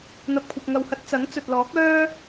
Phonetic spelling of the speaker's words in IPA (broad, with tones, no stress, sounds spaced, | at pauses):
n̪ ɐ˨ p̚ kʷʰ ɐ˨ p̚ ŋ ɐ˨ w h ɐ˧ t̚ t͡s ɐ˨˥ ŋ t͡s ɵ˨ t̚ l ɔː˨˥ k̚ œː˥